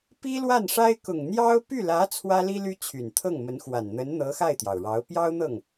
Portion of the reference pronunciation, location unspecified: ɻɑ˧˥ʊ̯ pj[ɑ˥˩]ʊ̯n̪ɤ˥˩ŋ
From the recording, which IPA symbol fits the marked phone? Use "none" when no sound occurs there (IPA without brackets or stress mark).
ɑ˥